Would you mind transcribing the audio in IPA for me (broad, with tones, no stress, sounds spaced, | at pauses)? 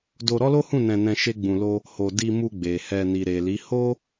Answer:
d o˧ ɾ ɔ˦ l o˦ h ũ˦˨ n ɛ̃˧ n ɛ̃˧ ʃ e˦ ɡ͡b ũ˧ l o˦ | h o˧ d i˧ m u˧ ɡ͡b e˨ h ɛ˧ n i˨ ɾ e˨ l i˨˦ h o˦